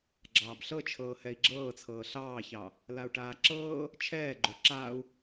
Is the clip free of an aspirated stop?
no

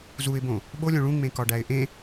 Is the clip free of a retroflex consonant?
no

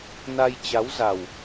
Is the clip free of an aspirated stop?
yes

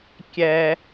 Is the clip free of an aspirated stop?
yes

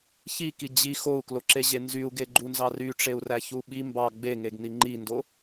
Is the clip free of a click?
no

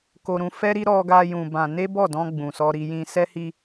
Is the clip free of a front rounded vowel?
yes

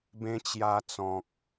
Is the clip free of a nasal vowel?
no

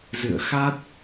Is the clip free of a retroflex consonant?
yes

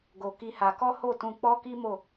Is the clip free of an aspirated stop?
yes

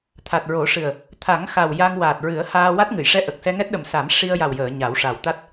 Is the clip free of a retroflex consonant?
no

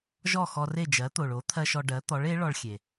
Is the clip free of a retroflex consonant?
no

